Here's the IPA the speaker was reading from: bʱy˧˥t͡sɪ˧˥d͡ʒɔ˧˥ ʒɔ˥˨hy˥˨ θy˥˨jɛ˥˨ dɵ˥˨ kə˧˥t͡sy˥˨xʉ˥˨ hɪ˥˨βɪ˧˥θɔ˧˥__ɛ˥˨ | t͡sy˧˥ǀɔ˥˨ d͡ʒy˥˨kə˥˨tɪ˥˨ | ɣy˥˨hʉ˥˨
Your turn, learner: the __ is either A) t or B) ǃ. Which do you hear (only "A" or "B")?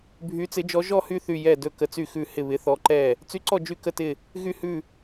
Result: B